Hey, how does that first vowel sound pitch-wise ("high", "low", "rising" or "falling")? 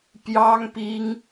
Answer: high